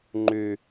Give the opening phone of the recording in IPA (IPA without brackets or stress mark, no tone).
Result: ŋ͡ǃ